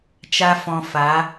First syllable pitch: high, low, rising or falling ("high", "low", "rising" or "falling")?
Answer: high